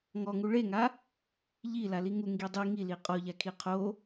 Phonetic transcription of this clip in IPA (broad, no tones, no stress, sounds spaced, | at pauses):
ŋ ɔ ŋ u ɭ e ŋ a | ʎ i l a l i ŋ u ŋ ɡ i dˤ i ŋ i l i qʼ ɔ ʎ a kʰ i qʰ o